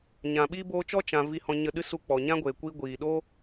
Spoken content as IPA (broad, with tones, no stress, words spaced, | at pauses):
ɲã˨ɓiː˦ boː˧t͡ʃɔ˦ t͡ʃã˧ vi˧hɔ̃˧ ɲə˧ɗɨ˦ su˧k͡pɔ˨ɲã˦ ɡʷeː˨kʷi˧ ɡʷiː˨ɗoː˦